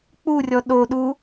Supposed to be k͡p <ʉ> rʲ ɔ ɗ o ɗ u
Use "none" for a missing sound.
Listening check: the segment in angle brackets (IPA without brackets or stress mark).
u